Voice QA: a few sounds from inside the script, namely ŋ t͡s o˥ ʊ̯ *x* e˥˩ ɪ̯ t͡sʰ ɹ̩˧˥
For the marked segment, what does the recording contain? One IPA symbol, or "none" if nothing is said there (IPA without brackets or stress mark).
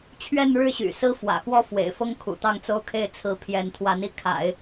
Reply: kʰ